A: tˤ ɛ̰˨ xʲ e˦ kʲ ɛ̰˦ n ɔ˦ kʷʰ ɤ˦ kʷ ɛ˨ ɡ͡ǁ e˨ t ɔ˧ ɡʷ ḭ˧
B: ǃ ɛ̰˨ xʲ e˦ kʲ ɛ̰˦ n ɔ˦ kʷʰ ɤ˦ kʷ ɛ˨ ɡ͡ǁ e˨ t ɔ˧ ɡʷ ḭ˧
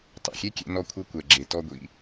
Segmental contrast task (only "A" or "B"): A